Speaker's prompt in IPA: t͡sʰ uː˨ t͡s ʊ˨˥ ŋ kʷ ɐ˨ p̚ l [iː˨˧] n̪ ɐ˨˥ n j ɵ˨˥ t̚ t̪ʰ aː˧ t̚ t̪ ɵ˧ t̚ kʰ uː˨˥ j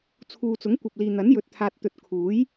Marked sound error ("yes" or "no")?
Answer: yes